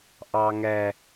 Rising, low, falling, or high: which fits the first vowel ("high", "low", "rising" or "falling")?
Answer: high